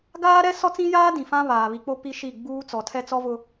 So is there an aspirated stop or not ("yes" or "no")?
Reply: yes